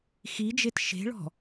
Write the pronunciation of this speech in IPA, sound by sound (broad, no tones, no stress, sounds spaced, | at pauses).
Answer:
x i d͡ʒ e t ʃ e̤ ɭ ɔ̤